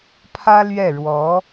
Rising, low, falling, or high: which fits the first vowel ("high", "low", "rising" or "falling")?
high